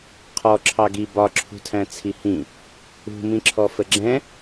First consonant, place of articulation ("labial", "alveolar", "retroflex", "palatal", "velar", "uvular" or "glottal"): uvular